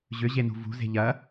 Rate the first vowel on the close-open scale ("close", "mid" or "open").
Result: close